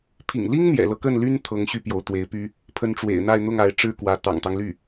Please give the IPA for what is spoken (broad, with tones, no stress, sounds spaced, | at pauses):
pʰ ḭ˨˩ ŋ l i˥ ŋ n̪ j ɛ̰˨˩ l ɤ˦ k ə˥˩ n l y˥ n t̪ʰ ɤ˧˥ ŋ ɕ y˥˩ p j o˧˥ ʊ̯ t̪ w e˧˥ ɪ̯ p y˥ | pʰ ə˧˥ n ʈ͡ʂ w ḛ˨˩ ɪ̯ n̪ a˥˧ ɪ̯ n̪ ʊ˥˩ ŋ a˧˥ ɪ̯ ʈ͡ʂ ɻ̩˥˩ k w ä˧˥ t̪ ɑ̰˨˩ ŋ t̪ ɑ˦ ŋ l y˥˩